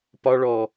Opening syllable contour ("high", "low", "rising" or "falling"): high